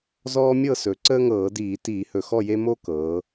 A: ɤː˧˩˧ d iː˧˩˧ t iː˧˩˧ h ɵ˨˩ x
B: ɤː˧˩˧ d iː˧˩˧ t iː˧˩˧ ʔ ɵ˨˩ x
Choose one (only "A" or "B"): A